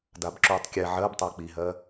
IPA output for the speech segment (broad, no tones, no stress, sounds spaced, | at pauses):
d a b ǁ uː tˤ kʲ ɛ ʕ ɜ b tˤ ɜ k͡p i ɦ ɜ